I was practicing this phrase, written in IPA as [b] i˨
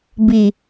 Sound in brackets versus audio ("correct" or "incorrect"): correct